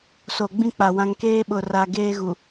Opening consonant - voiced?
no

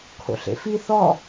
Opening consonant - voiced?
no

